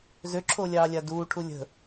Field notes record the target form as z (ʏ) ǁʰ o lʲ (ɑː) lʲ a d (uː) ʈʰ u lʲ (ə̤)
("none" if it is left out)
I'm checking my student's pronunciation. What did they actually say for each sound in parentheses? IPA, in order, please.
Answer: ʏ, ɑː, uː, ə̤

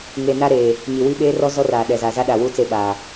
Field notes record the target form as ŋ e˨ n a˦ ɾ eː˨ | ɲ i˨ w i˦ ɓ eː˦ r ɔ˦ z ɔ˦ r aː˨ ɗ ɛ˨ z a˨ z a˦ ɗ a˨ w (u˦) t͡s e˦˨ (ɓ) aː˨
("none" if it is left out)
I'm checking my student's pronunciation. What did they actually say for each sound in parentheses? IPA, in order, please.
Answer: u˦, ɓ

